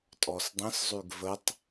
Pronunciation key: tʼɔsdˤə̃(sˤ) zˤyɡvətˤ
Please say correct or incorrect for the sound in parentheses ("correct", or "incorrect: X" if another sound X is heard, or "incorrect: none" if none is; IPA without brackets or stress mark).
incorrect: s